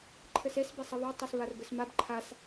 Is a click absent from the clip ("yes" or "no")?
no